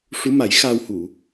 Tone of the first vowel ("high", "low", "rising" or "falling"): rising